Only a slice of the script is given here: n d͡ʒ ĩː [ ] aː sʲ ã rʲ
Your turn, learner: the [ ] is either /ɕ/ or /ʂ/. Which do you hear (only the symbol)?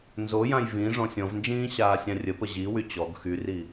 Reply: ɕ